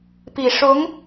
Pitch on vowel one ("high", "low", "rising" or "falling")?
low